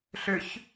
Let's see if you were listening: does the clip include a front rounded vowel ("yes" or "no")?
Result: yes